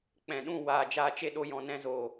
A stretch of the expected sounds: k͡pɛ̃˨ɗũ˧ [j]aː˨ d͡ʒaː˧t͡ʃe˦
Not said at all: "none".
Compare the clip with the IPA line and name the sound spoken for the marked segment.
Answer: w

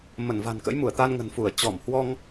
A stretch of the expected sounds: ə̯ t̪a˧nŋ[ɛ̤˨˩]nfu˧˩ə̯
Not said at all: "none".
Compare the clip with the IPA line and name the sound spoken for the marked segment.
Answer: ə̤˨˩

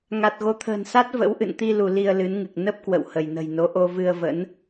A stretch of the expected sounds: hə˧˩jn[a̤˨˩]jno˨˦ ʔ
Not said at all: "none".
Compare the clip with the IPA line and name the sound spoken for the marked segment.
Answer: ə̤˨˩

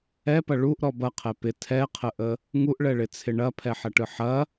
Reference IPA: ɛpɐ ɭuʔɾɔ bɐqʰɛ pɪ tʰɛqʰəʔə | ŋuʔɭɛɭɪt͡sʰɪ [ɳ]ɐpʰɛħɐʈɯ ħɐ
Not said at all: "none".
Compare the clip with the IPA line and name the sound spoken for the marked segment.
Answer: ɳ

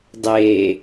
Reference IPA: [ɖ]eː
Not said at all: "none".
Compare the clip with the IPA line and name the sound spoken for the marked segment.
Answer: dˤ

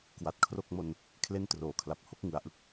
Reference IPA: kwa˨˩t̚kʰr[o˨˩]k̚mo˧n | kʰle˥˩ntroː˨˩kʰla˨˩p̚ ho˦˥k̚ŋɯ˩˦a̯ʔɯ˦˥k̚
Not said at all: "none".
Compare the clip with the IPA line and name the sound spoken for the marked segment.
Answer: o˥˩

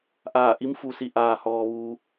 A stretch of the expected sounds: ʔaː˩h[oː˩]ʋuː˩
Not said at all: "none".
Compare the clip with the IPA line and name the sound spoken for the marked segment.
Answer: ɔː˩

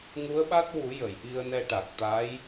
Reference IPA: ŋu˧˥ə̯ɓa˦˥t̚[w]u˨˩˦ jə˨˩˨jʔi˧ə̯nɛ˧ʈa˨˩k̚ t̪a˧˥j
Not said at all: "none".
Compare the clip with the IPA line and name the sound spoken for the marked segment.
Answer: w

